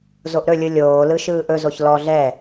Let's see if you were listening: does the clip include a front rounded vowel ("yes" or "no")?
no